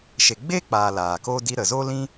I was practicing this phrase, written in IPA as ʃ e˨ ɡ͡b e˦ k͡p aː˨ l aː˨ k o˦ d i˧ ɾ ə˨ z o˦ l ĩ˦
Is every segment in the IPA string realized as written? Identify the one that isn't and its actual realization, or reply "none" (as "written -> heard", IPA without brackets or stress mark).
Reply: none